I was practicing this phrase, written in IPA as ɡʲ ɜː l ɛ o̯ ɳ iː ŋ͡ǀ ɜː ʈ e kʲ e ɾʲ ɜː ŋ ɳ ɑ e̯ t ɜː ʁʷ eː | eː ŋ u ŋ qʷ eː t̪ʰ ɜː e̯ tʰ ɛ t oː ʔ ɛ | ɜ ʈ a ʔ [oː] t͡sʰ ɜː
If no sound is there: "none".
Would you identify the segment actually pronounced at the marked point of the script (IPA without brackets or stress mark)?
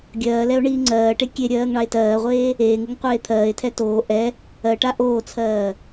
oː